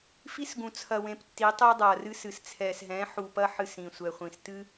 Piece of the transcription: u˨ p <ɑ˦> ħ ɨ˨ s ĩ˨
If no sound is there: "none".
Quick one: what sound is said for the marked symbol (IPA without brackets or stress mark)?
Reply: ɐ˦